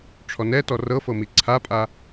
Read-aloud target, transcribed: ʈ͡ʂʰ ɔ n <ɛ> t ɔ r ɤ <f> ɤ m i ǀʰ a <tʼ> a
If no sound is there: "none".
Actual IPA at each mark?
ɛ, f, pʼ

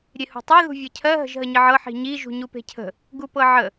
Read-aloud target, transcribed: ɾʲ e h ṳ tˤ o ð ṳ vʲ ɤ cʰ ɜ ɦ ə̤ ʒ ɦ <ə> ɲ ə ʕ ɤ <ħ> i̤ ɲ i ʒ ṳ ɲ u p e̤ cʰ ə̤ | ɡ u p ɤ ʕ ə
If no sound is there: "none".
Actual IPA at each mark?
ə, ħ

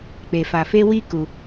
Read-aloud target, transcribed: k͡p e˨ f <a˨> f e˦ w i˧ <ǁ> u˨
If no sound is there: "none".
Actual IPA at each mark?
a˨, k

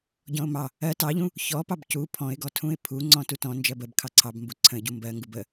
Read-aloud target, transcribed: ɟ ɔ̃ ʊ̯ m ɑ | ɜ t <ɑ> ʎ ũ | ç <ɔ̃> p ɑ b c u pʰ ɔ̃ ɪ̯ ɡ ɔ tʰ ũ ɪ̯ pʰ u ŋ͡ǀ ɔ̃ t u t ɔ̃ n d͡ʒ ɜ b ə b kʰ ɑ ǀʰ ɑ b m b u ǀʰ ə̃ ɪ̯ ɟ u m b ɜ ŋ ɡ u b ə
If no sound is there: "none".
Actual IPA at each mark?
ɑ, ɔ

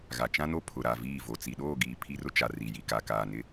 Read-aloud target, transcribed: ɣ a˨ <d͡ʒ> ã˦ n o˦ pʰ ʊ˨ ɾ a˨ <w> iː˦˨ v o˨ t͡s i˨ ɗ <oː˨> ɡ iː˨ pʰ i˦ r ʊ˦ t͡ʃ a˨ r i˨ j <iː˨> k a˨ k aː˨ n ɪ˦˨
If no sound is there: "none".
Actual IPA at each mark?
t͡ʃ, v, oː˦˨, i˨

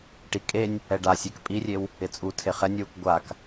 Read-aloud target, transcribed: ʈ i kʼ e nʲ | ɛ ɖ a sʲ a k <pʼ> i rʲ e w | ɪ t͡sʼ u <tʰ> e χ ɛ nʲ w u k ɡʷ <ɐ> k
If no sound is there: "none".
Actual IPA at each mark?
pʼ, tʰ, a

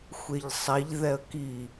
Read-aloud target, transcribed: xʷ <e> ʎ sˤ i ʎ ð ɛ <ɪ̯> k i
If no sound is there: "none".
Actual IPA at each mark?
e, ə̯

